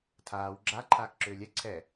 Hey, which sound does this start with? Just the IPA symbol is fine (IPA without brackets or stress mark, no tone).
tʰ